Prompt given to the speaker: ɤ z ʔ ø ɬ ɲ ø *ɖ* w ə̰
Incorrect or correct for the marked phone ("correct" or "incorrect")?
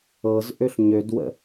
incorrect